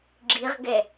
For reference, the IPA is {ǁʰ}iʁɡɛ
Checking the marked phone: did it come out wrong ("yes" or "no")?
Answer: yes